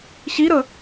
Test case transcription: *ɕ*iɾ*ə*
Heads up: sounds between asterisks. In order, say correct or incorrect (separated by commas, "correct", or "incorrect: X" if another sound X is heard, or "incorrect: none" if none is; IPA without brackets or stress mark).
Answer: correct, correct